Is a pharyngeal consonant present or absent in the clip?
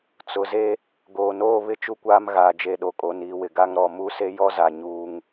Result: absent